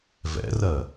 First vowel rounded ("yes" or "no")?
no